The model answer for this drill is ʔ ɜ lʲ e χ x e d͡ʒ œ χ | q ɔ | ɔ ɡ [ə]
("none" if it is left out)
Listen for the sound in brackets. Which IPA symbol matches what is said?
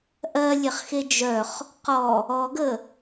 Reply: ə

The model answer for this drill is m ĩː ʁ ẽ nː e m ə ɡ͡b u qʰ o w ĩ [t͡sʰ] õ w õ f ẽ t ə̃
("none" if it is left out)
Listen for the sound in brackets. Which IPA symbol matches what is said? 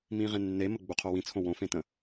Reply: t͡sʰ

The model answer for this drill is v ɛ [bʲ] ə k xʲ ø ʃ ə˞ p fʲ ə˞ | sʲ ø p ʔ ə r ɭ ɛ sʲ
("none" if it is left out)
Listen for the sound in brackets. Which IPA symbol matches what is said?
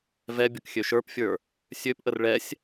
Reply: bʲ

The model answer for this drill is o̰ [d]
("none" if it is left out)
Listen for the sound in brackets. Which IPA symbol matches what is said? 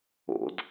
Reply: d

